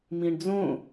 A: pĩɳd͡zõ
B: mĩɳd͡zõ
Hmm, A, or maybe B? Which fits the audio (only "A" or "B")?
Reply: B